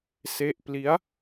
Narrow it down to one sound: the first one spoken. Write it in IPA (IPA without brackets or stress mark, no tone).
s